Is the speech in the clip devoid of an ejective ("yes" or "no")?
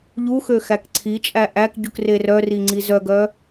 no